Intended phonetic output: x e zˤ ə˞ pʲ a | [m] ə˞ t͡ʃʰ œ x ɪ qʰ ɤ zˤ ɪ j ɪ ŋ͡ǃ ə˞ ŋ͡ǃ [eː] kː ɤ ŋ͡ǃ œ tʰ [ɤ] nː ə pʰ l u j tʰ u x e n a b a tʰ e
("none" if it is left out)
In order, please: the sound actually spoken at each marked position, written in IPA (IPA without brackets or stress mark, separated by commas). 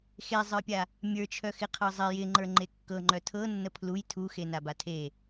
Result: mʲ, e, ɤ